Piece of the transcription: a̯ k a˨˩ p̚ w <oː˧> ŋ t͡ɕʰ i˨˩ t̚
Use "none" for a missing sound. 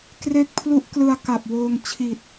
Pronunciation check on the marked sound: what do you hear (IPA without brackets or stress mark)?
oː˧